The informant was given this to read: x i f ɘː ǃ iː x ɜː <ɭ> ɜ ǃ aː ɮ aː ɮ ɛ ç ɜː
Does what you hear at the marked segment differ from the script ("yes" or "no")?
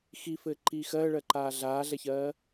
no